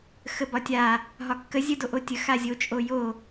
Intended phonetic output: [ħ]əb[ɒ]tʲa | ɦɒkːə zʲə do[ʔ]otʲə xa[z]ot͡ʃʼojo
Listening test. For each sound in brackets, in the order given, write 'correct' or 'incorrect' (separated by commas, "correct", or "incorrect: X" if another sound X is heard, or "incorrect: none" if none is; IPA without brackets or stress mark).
incorrect: x, correct, correct, incorrect: zʲ